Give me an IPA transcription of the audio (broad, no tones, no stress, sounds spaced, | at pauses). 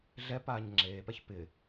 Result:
ɮ ɛ p aː ɲ ŋ͡ǁ eː p ɛ ç p ɪ